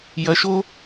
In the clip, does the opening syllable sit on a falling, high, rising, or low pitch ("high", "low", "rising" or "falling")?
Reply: rising